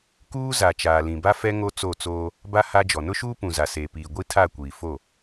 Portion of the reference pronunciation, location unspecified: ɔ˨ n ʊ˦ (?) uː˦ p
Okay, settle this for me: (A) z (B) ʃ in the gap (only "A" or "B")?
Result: B